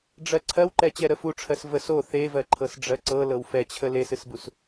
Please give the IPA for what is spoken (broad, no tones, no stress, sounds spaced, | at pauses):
ɖ͡ʐ ɜ ǀʰ ɜ w ǃ ɛ t͡ɕ ɛ ɾ ə f u ʈ͡ʂʰ ɜ s v ə s o θ e v ɜ ǃʰ ɤ s ɖ͡ʐ ɜ ǀ ɤ l ɤ w f ɛ t͡ɕʰ ə l e s ɨ s b u s